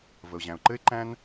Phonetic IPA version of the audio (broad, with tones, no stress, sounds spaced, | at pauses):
v ə˩ ʊ̯ ʑ æ̃˩ ʊ̯ ǃ ɘ˥ ɪ̯ ǃ æ̃˥ n